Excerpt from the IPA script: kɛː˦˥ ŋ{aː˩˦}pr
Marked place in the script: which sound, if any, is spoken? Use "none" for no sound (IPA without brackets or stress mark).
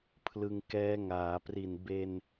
aː˩˦